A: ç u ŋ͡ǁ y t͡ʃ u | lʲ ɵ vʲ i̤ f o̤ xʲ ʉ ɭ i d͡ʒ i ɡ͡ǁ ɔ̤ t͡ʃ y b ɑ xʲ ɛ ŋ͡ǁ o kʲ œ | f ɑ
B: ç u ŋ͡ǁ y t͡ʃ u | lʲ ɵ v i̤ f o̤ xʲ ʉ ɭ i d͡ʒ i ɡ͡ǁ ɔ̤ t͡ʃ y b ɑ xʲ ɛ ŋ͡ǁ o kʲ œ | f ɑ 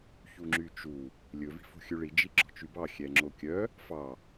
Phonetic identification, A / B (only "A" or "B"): B